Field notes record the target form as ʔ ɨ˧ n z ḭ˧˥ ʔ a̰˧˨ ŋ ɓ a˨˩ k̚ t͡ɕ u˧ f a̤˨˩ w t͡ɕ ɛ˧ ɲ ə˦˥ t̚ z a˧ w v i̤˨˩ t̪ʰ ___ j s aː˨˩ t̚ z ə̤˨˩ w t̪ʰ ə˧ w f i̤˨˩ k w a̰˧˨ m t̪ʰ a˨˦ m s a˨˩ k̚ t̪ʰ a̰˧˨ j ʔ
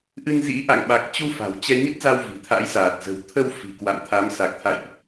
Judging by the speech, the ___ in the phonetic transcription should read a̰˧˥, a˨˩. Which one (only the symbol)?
a̰˧˥